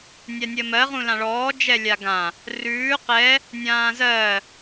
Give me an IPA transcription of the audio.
nʲanʲɜmɜ ʁũlãɭɔː d͡ʒɛlʲaɡã | rʉː qɛ | nʲãːzɜ

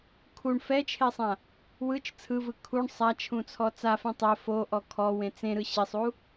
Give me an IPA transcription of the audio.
kʰuɳ fɛt͡ʃʰesˤã | wɯt͡ʃ t͡sʰɯvɯ kʰuɳ sˤat͡ʃʰũt͡sʰɔ t͡safẽ tˤɛ foʔɔ kʰɔwẽ t͡sẽɾɯ ɕesˤu

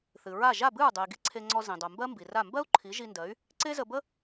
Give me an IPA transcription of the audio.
θɨ˩ɹa˥˩ ʒa˥˩bɨ˥˩ɹdˤɨ˩i̯ ɡi˧ǀʰe˧ŋ͡ǀɔ˧ zĩ˩dˤo˩mbɜ˥ mbi˩ra˥˩ mbɜ˥u̯ǃʰi˩˥ʒi˧ ndɜ˩˥y̯ | ǀe˥zə˧bə˥

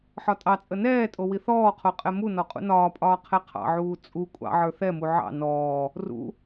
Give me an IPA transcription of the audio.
ħɒtʼɑt͡sʼə nɛːtʼo wiθɔːqʰo qʼɛmunɔ qʼṵnɒːpʼɒː qʰɛqʰɑ̰ʕuː t͡sʼu kʷʼɑ̰ʕə˞ θɛmu ʕɑ̰ nɔː | rṵ

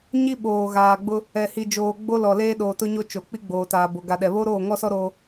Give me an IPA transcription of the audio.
ɲi˦ɓoː˨ ɣaː˨ɡ͡bʊ˦ | ɛ˨hi˨d͡ʒoː˨ ɡ͡bo˦lɔ˨ leː˦ɗoː˨tʊ˦ɲo˦ t͡ʃo˨k͡pi˦ɡ͡boː˨ taː˨ bo˨ɡa˨ɗɛ˨ βo˦ɾoː˦˨ŋɔ˦sɔ˦ ɾo˦

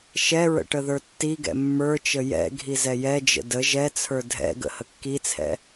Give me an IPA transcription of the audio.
ʃɛɹə̰ ʈəðə˞tːiɡɛ̰ mːə˞t͡ʃə jɛ̰ ɡʱizɛjɛd͡ʒə̰ də ʒɛt͡sʰə˞ dʱɛ̰ ɡə̰həkːit͡sʰɛ̰

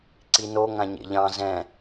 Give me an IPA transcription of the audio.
ǀino ŋãɲḛʎɑ̃ zɛ̃

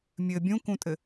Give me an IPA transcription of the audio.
mʲɘ bʲũkũtʼɘ

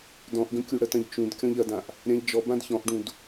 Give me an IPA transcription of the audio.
dɔ̃ʔɡə̃ kʲuɽətɐ̃ʎt͡ʃũd kʲɔ̃ʎɐdãʔ | ɾʲãʎd͡ʒɔbãd çɔ̃ʔɖũd

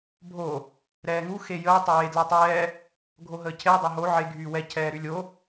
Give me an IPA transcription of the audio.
bʱo | ɾɛːŋu xejəː tˤəwe dlɛtˤɛː | ɡʱoɦəːcʰe dˤoɦo ʕe ɡʱyːwɛ cʰɛːɾylʲo

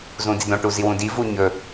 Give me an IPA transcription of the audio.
zũdidõ ʈuziwũdi vuɲɵ

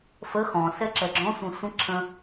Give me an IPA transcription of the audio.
fə xɔ̃sɛ ǁɛɡ͡ǁɔ̃sʷɛ̃ sʷə̃ ǁʰə̃

